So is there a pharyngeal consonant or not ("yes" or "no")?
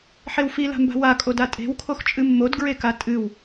yes